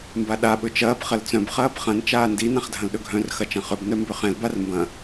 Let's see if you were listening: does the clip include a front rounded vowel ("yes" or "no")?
yes